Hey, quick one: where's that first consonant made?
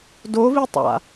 tongue tip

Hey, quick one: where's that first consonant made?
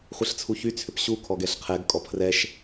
uvula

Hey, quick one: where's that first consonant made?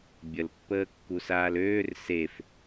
lips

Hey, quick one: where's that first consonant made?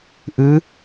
throat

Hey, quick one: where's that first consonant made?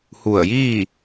throat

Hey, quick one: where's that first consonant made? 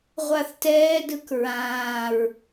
uvula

